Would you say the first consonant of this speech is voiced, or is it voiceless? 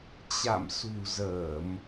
voiceless